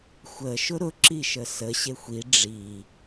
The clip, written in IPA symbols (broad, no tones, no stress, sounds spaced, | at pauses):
xʷ ə ʃ ʊ ɾ ʊ ǁ i ʃ ə s ə ɕ e xʷ i ɖ͡ʐ i